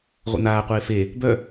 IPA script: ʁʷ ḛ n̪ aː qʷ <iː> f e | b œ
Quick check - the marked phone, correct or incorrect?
incorrect